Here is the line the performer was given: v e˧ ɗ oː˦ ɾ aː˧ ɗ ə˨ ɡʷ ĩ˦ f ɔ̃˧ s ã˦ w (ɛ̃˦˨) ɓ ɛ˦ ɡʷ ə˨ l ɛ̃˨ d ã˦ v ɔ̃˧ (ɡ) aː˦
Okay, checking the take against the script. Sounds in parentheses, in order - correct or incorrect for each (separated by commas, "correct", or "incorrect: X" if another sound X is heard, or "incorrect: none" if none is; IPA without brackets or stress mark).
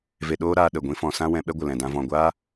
incorrect: ɛ̃˧, incorrect: ɡʷ